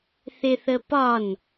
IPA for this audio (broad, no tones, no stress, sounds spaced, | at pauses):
θ ɪ θ ə p ɒ n